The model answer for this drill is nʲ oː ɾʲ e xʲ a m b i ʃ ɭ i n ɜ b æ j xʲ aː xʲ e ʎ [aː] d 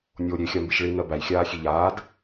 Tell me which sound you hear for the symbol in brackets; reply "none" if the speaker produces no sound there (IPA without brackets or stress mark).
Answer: aː